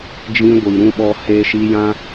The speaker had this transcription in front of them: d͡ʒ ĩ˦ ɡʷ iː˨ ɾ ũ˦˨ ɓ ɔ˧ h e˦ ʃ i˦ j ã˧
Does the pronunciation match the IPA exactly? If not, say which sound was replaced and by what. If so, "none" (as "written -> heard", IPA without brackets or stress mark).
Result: none